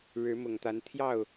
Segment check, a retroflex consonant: present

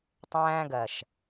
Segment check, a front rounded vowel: absent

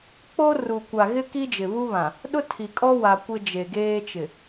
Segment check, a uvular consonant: absent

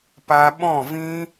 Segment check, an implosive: present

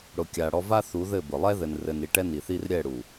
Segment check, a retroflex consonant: present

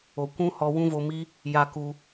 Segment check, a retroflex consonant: absent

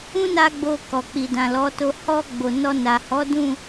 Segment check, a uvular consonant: absent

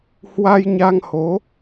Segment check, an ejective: absent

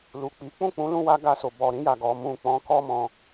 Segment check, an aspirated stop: absent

